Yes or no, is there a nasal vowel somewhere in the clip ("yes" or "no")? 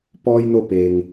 no